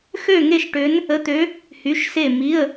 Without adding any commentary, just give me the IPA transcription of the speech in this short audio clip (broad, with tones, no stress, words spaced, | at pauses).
xø˥˧ŋe˥˧ʃʈø˧˥n | ə˧˥˧t̪ø˧˥ | hy˧˥˧ʃse˥˧ mi˧˥˧ə̯